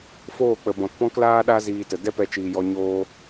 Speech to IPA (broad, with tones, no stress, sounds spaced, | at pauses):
f oː˦˨ k͡p ə˨ b ɔ̃˨ t p ɔ̃˦ k l aː˦ ɗ a˦ z iː˧ t ə˨ d ɛ˦ p ɛ˧ t͡ʃ iː˨ j ɔ˧ ɲ oː˦